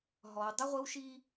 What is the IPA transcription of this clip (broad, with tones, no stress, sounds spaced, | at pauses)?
ɦ ɔ˨ w dˤ ʊ˦ ʁʷ ɪ˦ w ʃ i˦